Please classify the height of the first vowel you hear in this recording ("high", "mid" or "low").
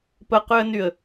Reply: mid